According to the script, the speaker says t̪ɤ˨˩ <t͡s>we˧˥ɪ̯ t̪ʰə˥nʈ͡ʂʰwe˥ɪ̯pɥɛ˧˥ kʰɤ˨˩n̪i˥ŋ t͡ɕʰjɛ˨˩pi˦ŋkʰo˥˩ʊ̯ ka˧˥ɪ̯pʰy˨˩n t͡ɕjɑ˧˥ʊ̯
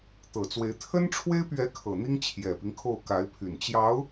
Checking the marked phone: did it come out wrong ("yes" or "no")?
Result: no